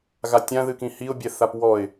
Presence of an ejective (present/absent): absent